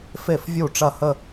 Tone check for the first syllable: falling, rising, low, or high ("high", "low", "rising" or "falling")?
falling